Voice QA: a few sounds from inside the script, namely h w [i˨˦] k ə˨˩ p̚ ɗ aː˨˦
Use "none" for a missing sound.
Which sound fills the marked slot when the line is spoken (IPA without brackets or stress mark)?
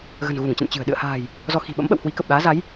i˨˦